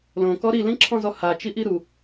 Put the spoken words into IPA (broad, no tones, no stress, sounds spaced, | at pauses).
l õ k ɔ ɾ i l ĩ ǁʰ ɔ̃ z ɔ h a t͡ʃ i ʔ i ɾ u